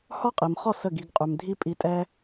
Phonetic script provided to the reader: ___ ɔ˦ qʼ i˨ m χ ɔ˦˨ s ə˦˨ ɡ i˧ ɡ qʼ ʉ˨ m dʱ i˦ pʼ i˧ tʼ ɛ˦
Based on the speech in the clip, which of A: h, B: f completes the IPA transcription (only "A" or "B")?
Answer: A